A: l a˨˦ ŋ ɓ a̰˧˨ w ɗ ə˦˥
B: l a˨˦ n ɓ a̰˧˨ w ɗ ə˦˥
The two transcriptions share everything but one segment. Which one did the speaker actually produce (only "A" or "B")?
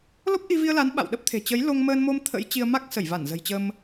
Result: B